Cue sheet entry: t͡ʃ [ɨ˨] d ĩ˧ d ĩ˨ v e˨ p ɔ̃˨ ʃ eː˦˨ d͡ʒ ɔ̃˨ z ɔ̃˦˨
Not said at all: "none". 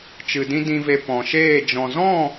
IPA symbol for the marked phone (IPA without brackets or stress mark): ɨ˨